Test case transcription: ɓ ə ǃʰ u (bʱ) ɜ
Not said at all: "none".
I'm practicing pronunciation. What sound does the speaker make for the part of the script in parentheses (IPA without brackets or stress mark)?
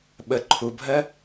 bʱ